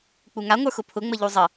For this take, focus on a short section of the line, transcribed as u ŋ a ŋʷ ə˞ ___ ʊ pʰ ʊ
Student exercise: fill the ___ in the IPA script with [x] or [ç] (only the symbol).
x